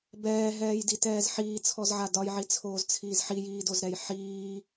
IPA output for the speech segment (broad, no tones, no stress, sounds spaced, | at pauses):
b ɛː ɦ ɛː j d i t ɛː z ħ iː t͡sʰ ɔ z ʕ a d ɒ j ʕ i t͡sʰ oː z t͡sʰ iː z ħ i j iː d o z ɾ ɛ j ħ iː